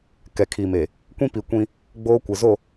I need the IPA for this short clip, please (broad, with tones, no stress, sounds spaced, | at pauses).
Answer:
k ɛ˨ kʰ i˨ m e˨ | kʷ ĩ˦ p i˨ kʷ ĩ˦ | ɡ͡b oː˦ kʷ ɪ˨ z o˦˨